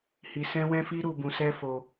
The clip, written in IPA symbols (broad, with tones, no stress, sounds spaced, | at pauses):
h i˧ s ɛ̃˦ w ɛ̃˦ f i˦ ɾ u˧ b ũ˧ s ɛ˦ f o˧